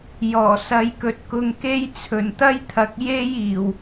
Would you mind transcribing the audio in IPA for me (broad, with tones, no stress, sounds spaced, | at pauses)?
j ɔː˨˩ s ɐ˨˧ j k ɵ˨ t̚ k ʊ˧ ŋ k e˥ j t͡sʰ ɵ˨˩ n t̪ ɐ˥ j t̪ʰ ɐ˨˥ k̚ j e˥ j iː˨˩ w